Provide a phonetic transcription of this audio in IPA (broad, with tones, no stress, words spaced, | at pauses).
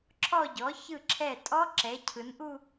ǁʰɔ˥˧ɟɔ˩˥ çɯ˧˩ǁʰɛ˧˩tʼɔ˦˥ǁɛ˩˧ cʰɯ˩˧nʔu˥˧